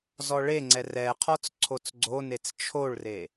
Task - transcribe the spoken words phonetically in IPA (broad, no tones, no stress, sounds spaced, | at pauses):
z ɔ ɭ e ŋ͡ǀ ɛ r ɛ qʰ ɔ t͡s ǀʰ o t͡s ɡ͡ǀ o n e t͡s t͡ʃʰ o ɭ r e